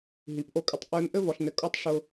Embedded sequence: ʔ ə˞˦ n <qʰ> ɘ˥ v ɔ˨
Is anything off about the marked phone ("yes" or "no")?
yes